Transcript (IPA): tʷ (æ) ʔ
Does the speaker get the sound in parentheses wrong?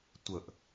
yes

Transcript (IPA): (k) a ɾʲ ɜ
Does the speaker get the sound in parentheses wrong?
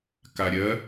no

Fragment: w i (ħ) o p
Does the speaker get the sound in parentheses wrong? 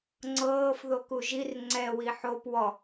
no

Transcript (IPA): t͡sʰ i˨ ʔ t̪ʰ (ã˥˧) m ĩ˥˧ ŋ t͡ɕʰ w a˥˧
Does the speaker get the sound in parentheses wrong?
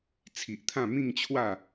no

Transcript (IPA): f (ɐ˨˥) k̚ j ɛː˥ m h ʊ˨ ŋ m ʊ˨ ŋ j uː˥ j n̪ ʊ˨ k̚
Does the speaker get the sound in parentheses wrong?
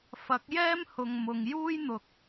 no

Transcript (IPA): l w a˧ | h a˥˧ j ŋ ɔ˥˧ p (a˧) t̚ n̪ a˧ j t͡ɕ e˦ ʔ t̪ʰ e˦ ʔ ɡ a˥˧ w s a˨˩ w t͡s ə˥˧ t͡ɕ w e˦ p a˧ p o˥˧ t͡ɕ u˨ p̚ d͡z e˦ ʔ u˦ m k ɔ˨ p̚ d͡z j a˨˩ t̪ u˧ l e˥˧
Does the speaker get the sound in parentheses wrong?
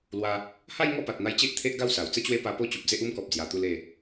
yes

